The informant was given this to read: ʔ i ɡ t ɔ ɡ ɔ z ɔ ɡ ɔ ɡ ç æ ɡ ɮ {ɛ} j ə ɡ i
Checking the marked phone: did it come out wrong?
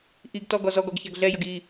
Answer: no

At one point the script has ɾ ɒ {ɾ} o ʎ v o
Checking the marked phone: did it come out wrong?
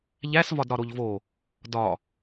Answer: no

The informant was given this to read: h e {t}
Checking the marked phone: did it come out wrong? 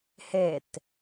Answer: no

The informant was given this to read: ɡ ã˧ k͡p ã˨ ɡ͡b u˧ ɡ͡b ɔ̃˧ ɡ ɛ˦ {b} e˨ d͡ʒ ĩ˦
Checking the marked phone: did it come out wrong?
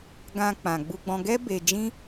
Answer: no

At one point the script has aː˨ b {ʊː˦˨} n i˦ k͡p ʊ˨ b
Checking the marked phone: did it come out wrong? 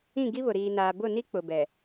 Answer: yes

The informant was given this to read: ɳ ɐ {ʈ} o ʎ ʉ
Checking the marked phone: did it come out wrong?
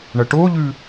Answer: no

